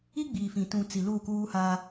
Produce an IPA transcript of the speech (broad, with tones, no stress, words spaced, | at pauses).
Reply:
i˦ɡ͡biː˨fĩ˨ tũ˨ t͡si˨ luː˦˨kuː˦haː˦